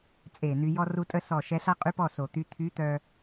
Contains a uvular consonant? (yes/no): yes